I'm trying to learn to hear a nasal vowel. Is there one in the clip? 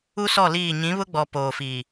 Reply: yes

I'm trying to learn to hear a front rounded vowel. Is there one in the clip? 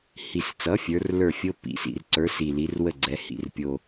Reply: no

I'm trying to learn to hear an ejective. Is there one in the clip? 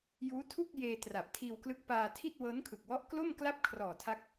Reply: no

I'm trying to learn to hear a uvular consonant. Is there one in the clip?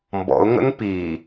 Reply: no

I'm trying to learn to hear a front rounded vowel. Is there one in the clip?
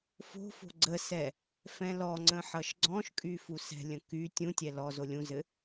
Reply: yes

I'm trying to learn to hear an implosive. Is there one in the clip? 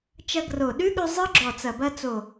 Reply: yes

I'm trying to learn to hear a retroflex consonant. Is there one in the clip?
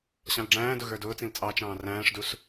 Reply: yes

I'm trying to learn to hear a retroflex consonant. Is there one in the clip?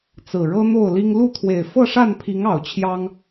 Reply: yes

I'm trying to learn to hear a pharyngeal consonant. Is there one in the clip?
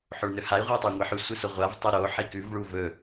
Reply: yes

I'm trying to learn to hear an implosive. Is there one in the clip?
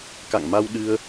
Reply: yes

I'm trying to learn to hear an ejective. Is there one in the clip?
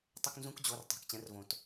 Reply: no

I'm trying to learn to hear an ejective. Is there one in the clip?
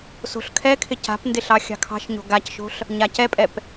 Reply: yes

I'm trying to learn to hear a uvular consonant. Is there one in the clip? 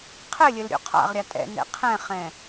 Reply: yes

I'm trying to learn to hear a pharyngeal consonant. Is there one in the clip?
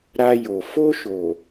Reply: no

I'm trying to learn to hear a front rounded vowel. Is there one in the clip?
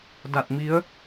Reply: no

